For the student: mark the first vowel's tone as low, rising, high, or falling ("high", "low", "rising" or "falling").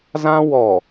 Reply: high